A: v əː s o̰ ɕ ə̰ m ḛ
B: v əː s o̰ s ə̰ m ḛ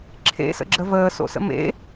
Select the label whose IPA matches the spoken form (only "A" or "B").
B